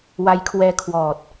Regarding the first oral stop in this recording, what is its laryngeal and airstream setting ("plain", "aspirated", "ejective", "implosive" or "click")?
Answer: aspirated